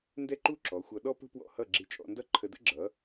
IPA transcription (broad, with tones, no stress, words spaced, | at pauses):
ndɛ˥ǃu˥ǁɔ˩˥xʷʌ˧ ɗɔ˥pə̤˥pwɔ̰˥˩ hʌ˥˩ɡ͡ǁi˧t͡ʃʼɔ̰˧ndʌ˥ ǃʰə˧də̰˥ɡ͡ǁʌ˩˥